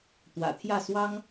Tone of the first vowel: low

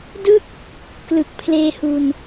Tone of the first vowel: falling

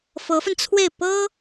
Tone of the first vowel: rising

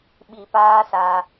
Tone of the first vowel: low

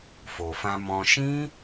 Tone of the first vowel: low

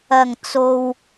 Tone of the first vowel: low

